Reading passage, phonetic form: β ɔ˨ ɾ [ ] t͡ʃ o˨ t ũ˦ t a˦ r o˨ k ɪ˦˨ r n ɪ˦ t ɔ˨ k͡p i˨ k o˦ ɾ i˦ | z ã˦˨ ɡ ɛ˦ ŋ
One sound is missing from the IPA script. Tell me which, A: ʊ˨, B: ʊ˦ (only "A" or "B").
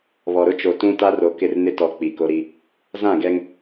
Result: B